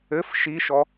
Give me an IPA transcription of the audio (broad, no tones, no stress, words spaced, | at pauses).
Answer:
ɘf ʃiʃɔ